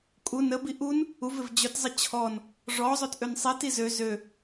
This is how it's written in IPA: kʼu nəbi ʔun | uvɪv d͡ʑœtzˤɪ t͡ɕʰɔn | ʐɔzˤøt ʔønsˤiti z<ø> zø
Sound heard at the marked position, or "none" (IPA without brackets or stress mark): ø